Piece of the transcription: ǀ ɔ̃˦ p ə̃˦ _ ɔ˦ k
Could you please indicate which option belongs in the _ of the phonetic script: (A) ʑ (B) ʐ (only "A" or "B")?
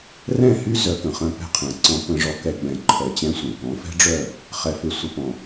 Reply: B